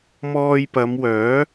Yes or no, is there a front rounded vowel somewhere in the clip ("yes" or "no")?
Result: yes